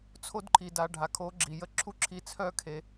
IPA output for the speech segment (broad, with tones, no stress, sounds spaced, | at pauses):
t͡sʰ o˧ d ǃʰ i˨ d a˨ ɖʱ a˨ kʰ o˨˦ ɡ͡ǁ i˨ j ə˧ ǁʰ u˦ ǁʰ i˧ t͡sʰ œ˦ kʰ e˧